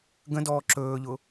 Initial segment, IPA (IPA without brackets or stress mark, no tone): ɡ